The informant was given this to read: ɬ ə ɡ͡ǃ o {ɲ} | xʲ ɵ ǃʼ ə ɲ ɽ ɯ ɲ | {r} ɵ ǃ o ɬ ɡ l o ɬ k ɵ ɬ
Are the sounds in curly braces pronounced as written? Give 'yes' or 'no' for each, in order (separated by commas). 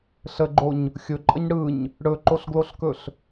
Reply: yes, no